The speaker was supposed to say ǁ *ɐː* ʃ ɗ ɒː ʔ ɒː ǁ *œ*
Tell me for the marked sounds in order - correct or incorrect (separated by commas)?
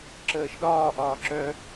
incorrect, correct